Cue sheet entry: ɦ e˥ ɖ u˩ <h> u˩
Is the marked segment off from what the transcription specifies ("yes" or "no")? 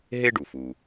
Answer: yes